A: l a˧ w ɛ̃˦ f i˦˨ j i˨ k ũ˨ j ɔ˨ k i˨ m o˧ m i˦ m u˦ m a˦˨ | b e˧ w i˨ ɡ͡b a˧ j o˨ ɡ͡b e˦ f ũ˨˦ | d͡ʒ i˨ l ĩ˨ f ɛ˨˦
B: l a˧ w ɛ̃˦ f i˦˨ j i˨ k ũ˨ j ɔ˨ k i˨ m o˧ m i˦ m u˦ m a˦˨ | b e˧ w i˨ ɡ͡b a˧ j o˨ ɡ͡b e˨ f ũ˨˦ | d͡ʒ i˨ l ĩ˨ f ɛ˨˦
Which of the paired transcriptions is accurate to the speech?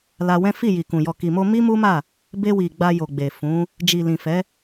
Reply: B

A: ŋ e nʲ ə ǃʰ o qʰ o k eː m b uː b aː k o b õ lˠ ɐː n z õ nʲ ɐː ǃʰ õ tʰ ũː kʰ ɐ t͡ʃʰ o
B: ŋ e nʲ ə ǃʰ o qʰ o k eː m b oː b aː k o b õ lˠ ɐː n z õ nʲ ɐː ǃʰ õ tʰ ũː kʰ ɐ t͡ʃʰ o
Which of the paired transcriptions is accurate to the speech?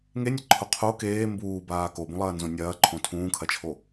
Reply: A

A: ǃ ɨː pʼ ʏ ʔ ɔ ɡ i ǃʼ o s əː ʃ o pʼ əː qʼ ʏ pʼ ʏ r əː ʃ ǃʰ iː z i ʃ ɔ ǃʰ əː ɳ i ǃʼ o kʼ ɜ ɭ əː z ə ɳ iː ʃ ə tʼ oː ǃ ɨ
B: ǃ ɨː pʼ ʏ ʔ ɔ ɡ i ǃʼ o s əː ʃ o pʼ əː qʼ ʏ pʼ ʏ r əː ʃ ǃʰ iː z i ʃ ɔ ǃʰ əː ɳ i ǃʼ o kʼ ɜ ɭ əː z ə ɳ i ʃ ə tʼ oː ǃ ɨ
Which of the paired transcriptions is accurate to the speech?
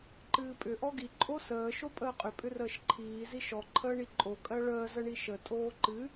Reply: B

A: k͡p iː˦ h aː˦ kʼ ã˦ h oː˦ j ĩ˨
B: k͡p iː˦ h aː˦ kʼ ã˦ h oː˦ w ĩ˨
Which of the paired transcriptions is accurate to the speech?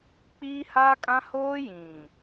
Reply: A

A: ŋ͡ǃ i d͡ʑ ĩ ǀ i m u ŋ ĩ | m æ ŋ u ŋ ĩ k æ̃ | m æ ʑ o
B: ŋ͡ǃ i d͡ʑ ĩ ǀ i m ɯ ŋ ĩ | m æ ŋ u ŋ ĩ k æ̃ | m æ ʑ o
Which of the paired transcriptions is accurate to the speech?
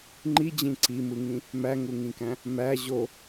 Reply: B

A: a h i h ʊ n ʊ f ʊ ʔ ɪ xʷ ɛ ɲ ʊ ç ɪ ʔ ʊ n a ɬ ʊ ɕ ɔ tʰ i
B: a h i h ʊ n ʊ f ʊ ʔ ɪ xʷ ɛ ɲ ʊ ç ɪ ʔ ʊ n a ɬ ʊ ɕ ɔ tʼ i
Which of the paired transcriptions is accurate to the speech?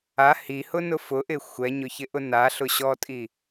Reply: B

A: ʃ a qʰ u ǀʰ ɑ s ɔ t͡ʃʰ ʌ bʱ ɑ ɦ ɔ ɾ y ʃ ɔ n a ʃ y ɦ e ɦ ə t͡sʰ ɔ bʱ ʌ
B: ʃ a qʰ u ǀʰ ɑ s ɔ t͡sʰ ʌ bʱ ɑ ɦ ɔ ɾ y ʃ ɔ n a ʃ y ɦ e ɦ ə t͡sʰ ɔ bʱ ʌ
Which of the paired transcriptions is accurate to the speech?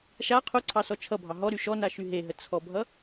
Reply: A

